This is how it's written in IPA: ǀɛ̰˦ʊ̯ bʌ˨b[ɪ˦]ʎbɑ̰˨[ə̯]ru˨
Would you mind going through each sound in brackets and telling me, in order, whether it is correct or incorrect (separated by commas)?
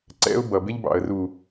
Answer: correct, correct